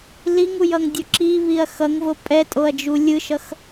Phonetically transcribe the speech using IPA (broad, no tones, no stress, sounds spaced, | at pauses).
l i ŋ u j ʌ ŋ dʲ o ǁ i β i ɐ̯ x ʌ ŋ v o pʼ ɛ tʼ o ɐ̯ d͡ʒ u lʲ ɯ ʃ ʌ x